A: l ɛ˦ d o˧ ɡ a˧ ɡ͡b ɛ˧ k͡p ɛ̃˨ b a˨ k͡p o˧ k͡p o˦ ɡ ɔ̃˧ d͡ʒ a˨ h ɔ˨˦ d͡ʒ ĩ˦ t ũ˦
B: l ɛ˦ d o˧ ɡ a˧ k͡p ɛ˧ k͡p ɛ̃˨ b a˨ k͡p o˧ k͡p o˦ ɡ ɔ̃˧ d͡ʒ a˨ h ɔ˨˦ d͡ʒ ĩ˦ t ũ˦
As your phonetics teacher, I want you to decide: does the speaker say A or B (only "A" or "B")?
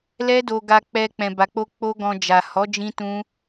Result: B